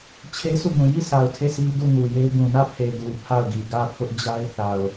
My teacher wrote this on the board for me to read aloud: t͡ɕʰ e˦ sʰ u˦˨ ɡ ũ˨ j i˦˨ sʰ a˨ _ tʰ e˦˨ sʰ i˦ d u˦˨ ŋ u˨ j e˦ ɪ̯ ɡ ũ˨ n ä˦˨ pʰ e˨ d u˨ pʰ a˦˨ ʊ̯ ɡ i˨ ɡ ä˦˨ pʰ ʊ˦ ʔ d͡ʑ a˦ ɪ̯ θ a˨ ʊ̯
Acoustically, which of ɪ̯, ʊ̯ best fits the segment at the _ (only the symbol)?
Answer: ʊ̯